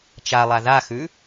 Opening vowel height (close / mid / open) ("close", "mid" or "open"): open